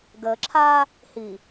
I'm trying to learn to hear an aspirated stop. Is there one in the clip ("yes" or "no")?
yes